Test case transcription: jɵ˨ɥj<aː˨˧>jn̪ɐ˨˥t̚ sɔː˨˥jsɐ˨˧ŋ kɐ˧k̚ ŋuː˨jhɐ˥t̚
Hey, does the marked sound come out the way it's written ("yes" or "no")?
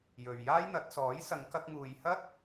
no